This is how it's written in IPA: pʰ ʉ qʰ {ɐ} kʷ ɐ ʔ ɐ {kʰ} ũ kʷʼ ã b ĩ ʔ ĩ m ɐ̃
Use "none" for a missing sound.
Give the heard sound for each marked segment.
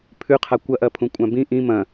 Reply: a, pʰ

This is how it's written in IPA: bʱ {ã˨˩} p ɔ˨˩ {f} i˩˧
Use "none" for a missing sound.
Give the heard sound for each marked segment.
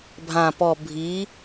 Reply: ã˨˩, bʱ

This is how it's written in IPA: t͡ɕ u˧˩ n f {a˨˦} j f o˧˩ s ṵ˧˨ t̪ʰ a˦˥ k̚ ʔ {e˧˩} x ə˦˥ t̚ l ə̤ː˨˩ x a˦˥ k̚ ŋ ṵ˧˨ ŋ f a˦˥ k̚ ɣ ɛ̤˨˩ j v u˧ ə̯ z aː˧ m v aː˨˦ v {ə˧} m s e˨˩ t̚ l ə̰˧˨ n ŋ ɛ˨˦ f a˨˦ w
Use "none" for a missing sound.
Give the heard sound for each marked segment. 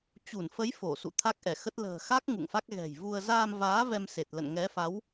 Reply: ə˨˦, ɛ˧˩, ɛ˧

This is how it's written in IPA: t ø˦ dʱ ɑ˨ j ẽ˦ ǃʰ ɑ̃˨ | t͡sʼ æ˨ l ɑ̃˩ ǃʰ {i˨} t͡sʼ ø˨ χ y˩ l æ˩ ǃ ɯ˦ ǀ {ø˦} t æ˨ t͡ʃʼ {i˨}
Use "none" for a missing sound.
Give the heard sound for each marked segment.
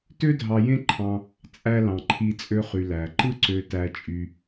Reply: i˨, ø˨, y˨

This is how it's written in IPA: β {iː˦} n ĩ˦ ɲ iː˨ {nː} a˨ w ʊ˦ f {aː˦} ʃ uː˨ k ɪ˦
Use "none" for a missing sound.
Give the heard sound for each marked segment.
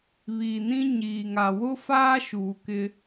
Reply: iː˨, ŋ, aː˦

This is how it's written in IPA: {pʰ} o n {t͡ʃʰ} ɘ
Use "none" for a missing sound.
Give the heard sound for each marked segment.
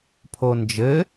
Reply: pʰ, d͡ʒ

